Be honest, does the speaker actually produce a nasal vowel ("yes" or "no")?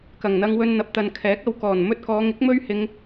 no